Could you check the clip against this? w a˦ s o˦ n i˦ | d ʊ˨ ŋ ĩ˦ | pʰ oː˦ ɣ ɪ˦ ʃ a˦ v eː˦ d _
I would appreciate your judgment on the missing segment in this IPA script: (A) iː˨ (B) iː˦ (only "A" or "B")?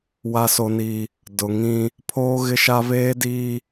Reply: B